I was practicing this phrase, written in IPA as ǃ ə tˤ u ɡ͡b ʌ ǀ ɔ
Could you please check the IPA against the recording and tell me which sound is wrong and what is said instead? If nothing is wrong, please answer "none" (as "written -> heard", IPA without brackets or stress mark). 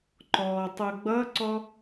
ə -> ɔ